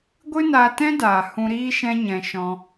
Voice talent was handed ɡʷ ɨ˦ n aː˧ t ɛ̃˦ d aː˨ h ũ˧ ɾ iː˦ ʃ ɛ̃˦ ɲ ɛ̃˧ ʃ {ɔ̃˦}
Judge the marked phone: incorrect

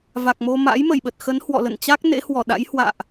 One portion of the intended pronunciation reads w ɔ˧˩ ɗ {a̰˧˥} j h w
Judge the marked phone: correct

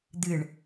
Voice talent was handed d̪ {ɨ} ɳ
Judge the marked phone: correct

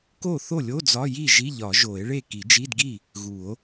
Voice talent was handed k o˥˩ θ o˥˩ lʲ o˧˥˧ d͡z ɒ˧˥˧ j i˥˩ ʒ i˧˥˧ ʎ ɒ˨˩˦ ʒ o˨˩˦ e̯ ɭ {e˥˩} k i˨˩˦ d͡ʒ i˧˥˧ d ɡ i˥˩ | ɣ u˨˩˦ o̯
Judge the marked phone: correct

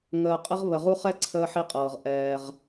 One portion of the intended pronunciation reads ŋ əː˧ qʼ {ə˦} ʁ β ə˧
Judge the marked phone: correct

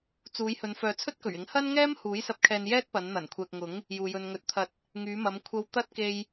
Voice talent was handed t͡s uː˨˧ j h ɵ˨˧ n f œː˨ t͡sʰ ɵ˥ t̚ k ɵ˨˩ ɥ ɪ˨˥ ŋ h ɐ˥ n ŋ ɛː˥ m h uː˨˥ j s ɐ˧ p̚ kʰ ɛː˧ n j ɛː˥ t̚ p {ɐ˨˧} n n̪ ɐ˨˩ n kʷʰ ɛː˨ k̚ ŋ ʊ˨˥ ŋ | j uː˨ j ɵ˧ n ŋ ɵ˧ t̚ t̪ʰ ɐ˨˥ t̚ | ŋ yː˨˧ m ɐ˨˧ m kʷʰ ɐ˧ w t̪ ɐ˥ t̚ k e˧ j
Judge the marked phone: correct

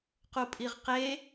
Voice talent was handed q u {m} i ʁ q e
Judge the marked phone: incorrect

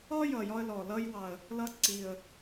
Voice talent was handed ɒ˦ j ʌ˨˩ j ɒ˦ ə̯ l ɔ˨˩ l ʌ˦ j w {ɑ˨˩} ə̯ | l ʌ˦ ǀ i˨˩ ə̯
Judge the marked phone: correct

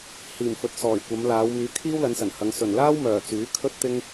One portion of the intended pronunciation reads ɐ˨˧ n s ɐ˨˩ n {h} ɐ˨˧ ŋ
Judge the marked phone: correct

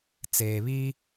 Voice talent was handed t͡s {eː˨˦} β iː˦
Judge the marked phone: incorrect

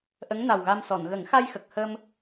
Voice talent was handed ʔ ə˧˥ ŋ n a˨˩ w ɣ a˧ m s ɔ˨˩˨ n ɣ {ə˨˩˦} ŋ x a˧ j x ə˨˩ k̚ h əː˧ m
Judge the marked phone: correct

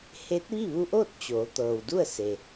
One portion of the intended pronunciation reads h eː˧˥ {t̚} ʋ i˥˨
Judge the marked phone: correct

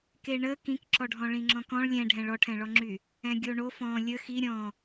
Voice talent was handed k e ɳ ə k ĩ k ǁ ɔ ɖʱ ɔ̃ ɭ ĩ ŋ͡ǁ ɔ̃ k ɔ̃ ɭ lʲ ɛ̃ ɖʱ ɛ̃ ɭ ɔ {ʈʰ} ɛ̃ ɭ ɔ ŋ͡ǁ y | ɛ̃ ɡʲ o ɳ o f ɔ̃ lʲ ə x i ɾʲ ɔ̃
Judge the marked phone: correct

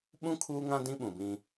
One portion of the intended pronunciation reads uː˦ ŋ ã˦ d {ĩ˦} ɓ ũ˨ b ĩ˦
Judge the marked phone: correct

